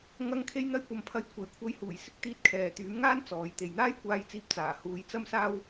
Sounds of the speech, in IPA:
ŋ ɐ˧ ŋ kʰ e˧ j n̪ ɐ˧ j kʷ ɐ˨ m pʰ ɐ˨˧ j kʷʰ e˨˩ j kʷʰ ɐ˧ j h uː˨˩ j s ɪ˥ k̚ t̪ iː˧ t̚ kʰ ɛː˨ t̪ yː˨˥ m ŋ aː˥ n t͡s ɔː˨˧ j t̪ e˨ j n̪ aː˥ j kʷ aː˧ j t͡s iː˧ p̚ t͡s aː˨˩ h uː˨˧ j t͡s ɐ˥ m s aː˥ w

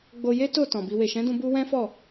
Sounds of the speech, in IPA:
ɡ͡b o˧ j e˦ t o˦˨ t ɔ̃˨ b i˧ w e˨ ʃ ɛ̃˨˦ d ũ˧ b u˧ w ɛ̃˦ f ɔ˦˨

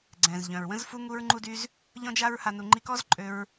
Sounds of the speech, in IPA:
ɡ͡ǀ ɛ̃˨ z ʎ œ̃˨ ɹ w ə̃˦ z f u˦ ŋ u˦ ɹ ŋ͡ǃ u˦ d y˦ z | ʎ ɔ̃˦ d͡ʒ a˦ ɹ h a˧ n u˧ ŋ͡ǃ i˦ k ɔ˦ z ǃʼ ø˧ ɹ

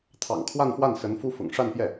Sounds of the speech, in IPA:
t̪ʰ ɑ̰˨˩ ŋ kʰ w a˥˧ n f w a˥˩ n s ə˧˥ n f u˥ f ʊ̰˨˩ ŋ ʂ a˥˧ n p j ɛ˥˩

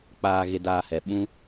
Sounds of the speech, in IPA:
k͡p aː˨ ɣ e˨ d aː˨ h ɛ˨ ɓ ũ˦

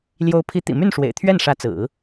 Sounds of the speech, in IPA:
l j o˧˥ ʊ̯ pʰ i˧˥ t̪ ḭ˨˩ m y˥˩ n ʂ w ḛ˨˩ ɪ̯ t̪ʰ ɥ ɛ˥˩ n ʂ ä˧˥ t͡s ɹ̩˨˩˦

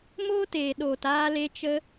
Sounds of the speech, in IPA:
m oː˦ t eː˨ ɗ oː˨ t aː˧ l e˧ t͡ʃ ə˦

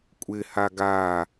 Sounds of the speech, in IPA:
kʷʼ ɪ h a ɡ a

